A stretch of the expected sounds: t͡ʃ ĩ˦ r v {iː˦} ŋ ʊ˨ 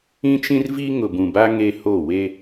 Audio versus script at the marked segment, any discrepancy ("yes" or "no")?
yes